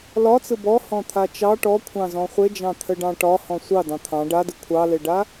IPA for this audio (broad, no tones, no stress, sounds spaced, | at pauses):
l ɒ t͡s ɯ b ɔ h ɔ̃ t̪ʰ a t͡ʃ ɑ ʈ ɔ kʷʰ ɑ̃ z ɔ̃ χʷ e d͡ʒ ɑ̃ t̪ʰ ə ɖ ɑ̃ ʈ ɒ h ɔ̃ sʷ ɑ d ɑ̃ t̪ʰ ɑ̃ ɖ a d ɯ kʷʰ ɑ l e ɖ a